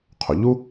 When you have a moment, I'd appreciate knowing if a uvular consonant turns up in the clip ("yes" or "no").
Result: yes